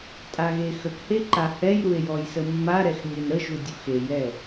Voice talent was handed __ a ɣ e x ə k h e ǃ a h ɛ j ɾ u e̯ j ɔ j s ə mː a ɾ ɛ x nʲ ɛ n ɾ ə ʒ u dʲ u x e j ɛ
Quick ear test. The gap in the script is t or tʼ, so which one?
tʼ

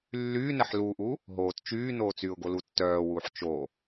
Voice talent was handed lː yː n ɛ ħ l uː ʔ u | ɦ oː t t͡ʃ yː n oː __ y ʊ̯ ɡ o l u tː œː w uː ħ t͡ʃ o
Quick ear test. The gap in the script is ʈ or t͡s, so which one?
t͡s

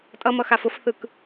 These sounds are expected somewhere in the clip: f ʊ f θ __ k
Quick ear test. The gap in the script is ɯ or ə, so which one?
ɯ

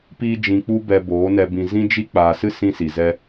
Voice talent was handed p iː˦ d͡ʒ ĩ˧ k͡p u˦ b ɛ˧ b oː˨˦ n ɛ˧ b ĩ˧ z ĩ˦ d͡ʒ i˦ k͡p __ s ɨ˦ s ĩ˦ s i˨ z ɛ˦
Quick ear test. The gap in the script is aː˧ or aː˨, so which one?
aː˨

